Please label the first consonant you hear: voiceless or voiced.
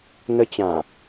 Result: voiced